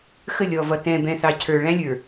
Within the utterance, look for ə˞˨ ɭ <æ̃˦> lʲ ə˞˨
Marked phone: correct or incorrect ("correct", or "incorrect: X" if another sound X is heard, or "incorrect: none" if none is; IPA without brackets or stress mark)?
correct